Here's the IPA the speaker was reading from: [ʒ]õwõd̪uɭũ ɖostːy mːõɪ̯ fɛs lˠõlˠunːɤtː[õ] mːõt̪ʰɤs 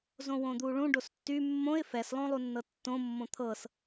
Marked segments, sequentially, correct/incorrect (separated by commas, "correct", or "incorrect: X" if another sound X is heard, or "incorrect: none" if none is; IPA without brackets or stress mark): incorrect: z, correct